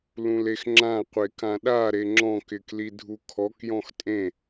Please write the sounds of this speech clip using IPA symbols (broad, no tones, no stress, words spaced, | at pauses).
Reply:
lũlexŋ͡ǁã qʷekãɗa ɾeŋ͡ǁɔ̃k ɪklidʱukʰɔk jɔ̃xtʼẽ